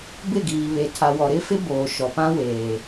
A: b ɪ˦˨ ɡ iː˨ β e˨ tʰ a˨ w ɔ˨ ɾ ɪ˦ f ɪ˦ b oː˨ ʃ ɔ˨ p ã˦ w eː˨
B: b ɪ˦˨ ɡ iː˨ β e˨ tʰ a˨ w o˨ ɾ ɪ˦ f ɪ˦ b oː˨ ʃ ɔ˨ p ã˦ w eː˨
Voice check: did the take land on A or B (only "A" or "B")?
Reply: A